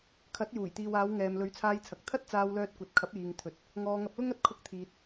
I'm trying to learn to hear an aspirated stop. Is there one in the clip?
yes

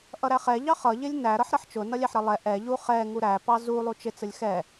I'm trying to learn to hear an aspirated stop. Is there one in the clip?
no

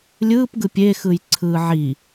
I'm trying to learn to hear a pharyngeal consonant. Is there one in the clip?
yes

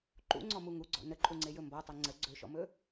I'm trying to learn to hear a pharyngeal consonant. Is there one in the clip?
no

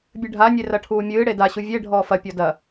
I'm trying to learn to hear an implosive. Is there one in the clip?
no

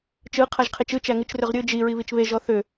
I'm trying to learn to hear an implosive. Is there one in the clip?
no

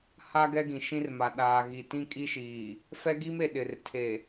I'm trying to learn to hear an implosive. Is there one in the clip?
yes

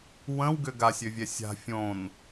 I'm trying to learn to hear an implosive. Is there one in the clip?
no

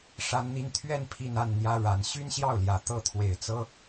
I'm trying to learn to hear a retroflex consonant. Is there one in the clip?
yes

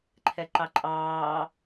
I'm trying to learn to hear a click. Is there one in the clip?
yes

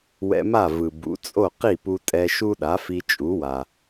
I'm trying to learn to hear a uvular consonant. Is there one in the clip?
yes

